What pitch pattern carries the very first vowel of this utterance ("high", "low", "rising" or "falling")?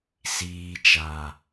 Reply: low